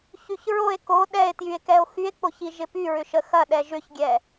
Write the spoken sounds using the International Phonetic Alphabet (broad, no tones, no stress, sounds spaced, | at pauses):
ç y ç ɹ o e̯ k o ɗ ɛ e̯ t j y e̯ k ɛ o̯ x y e̯ k͡p o ç i ʒ ɪ p y ɹ ʏ ʃ ə x ɐ ɗ ɛ ʒ ʏ ç ɡʲ ɛ